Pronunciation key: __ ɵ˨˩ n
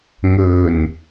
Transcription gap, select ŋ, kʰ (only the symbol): ŋ